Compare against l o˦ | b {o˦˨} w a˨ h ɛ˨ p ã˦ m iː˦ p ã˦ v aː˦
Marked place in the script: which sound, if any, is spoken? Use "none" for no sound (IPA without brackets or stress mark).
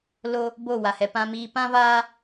o˦˨